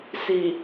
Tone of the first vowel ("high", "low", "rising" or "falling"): low